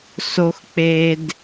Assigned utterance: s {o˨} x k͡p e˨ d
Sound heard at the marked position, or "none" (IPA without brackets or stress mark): o˨